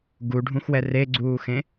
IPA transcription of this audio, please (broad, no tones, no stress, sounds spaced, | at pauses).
ɡ u ɖʱ ũ x w ɛ r e ɡ͡ǀ uː x ẽ